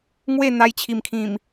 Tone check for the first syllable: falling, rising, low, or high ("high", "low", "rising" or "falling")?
falling